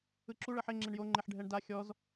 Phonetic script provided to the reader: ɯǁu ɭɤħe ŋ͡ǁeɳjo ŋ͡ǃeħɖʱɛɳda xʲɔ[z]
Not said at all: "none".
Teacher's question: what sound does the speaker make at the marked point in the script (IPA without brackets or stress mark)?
z